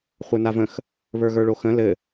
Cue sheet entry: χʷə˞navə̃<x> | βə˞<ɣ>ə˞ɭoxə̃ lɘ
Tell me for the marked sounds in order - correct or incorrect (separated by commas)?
correct, correct